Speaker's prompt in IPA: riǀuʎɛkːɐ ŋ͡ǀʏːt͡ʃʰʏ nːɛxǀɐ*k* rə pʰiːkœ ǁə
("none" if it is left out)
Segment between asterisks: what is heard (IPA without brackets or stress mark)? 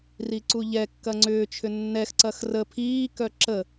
x